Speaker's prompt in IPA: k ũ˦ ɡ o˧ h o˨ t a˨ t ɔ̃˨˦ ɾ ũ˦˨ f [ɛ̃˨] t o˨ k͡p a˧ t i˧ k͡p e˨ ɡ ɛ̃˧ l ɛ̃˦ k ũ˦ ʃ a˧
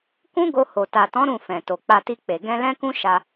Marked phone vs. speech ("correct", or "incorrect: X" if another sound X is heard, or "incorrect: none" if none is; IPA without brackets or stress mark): correct